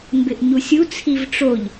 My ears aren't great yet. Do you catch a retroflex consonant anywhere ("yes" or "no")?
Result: yes